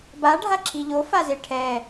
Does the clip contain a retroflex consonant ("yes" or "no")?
yes